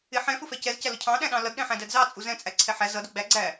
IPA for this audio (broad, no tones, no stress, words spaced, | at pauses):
ɪ ħɛ̃ fʊfɛcɛzcæ lʊcʰɑ̃ɗæ̃ɗɑ̃ lʌdɗɛ̃ħæ̃ dædzɑ t͡sʼuzɛ̃t͡sʼæ ǀʰɛħæ zʌdʊ ɡ͡bæ ɡ͡ǀæ